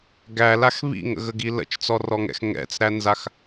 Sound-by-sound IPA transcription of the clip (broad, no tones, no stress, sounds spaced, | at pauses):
ɡ æ l a x β ḭ ŋ ə̰ ɣ ə ɡ i l ə̰ t͡ʃ t͡s ɔ r ɔ ŋ ɛ̰ x ŋ ɛ̰ t͡s ɾ æ n z a x